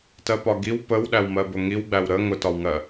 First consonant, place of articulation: alveolar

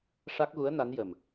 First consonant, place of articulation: retroflex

